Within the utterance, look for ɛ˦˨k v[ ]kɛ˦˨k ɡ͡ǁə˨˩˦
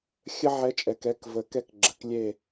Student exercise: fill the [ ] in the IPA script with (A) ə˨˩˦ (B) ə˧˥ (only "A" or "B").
A